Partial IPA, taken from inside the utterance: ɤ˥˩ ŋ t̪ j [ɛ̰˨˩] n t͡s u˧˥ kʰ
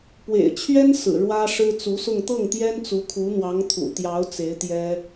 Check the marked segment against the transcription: incorrect: ɛ˥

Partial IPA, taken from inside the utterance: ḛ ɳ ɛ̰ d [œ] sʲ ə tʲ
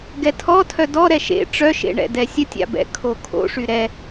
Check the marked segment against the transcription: incorrect: ɛ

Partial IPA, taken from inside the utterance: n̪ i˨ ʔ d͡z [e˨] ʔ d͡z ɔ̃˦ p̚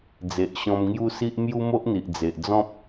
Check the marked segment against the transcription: correct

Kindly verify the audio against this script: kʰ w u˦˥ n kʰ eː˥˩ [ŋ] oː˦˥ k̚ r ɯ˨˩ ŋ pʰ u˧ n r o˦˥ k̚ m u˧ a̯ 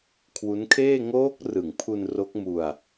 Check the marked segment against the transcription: correct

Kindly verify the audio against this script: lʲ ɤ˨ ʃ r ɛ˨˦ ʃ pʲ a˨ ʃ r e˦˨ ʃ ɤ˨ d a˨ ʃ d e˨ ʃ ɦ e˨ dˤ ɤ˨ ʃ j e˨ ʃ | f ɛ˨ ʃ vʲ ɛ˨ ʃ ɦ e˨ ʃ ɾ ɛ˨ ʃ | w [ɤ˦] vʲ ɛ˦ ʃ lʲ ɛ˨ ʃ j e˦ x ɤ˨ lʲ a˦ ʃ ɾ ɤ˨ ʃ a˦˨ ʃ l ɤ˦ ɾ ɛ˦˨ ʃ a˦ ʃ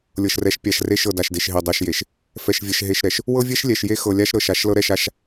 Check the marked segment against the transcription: correct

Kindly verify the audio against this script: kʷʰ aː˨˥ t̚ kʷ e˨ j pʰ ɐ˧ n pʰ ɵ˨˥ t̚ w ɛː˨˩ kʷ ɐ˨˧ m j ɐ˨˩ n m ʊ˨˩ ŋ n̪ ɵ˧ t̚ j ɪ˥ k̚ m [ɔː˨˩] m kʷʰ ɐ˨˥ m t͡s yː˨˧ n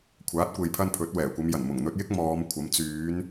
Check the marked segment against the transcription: incorrect: ɔː˨˧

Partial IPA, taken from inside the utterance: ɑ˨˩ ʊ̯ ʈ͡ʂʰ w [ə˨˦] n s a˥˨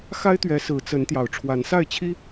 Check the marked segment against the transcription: incorrect: a˨˦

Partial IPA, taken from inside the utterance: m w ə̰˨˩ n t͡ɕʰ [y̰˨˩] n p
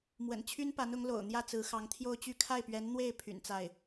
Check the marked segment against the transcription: incorrect: y˥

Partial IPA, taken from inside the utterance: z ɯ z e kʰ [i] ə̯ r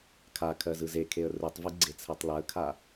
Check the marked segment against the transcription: incorrect: e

